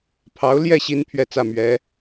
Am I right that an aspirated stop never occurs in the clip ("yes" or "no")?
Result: no